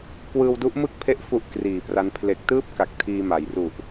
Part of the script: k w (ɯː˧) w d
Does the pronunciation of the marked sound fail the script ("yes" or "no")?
no